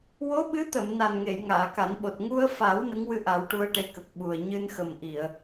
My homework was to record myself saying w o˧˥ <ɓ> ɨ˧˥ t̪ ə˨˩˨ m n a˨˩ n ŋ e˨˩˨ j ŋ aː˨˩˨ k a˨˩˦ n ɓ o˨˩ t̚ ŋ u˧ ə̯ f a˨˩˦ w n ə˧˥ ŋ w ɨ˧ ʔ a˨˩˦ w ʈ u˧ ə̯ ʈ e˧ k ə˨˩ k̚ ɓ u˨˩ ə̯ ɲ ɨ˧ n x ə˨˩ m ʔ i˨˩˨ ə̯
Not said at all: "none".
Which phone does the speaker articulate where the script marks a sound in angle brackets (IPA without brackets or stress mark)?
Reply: ɓ